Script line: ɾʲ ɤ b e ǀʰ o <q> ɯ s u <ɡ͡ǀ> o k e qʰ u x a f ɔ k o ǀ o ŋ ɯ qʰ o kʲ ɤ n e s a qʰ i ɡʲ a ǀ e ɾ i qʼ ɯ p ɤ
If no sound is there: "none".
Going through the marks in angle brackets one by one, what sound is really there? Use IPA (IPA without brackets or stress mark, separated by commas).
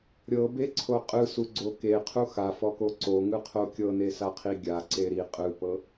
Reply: qʼ, ɡ͡ǀ